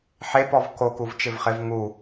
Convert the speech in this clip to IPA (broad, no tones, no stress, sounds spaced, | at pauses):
ħ e p ɔ v k o k u v t͡ʃ ɪ v χ ɪ v ŋ u